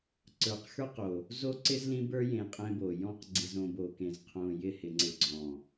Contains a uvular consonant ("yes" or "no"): yes